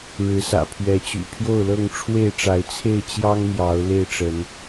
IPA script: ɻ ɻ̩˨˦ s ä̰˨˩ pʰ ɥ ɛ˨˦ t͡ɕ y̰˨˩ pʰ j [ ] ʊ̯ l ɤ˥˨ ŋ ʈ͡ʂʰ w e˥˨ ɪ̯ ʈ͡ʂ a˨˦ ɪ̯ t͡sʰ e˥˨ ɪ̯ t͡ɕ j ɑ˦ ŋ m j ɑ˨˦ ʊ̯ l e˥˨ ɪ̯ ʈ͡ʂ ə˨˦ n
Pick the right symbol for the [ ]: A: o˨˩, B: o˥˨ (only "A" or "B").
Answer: B